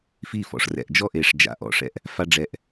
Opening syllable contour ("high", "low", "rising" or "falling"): falling